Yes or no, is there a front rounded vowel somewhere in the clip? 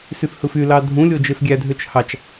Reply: yes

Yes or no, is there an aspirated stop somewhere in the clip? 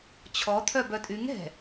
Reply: yes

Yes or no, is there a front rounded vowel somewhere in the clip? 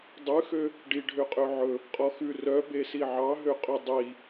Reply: yes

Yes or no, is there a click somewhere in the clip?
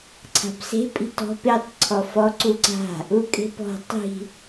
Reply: yes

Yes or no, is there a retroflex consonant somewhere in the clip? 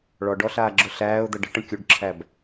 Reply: yes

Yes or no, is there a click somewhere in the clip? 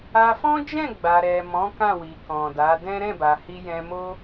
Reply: no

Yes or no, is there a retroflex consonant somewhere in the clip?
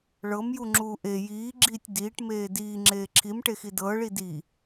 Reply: yes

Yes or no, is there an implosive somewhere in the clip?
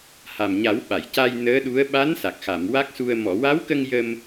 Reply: yes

